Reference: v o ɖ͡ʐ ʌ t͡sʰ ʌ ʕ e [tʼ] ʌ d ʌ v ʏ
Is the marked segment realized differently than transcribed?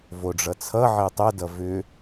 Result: yes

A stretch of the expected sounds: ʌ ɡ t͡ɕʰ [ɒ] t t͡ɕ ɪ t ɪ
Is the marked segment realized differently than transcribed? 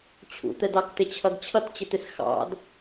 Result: yes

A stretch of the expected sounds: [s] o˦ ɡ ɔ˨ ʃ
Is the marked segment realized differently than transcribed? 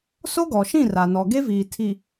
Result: no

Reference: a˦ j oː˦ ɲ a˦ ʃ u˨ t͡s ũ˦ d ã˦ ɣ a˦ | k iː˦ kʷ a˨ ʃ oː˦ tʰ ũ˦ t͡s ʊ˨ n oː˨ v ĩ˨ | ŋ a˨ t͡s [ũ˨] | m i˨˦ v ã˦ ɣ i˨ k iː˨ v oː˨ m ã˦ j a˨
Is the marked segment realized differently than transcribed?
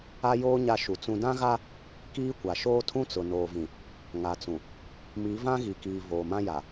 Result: no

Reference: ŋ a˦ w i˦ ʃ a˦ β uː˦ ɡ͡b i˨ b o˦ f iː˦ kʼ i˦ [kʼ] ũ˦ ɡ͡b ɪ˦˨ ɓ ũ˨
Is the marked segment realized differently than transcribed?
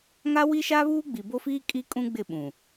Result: no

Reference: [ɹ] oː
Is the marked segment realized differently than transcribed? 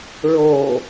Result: no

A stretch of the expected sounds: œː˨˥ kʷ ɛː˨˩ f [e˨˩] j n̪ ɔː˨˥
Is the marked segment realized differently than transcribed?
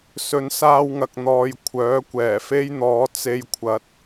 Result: yes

